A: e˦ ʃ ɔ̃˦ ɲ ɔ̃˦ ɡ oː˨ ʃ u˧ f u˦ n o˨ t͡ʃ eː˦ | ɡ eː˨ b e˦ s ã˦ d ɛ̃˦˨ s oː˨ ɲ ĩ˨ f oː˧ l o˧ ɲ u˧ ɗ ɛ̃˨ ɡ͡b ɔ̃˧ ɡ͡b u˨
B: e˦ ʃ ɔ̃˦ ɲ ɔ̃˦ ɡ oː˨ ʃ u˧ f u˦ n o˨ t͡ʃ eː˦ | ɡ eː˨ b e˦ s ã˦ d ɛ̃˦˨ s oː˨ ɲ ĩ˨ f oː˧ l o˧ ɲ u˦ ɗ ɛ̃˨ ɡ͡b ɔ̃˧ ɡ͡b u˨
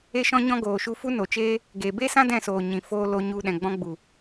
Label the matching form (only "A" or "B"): A